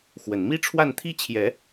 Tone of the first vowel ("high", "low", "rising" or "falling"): low